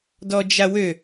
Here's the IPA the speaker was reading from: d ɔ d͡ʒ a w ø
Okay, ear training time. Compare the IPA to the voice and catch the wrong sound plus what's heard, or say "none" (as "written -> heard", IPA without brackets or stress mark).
none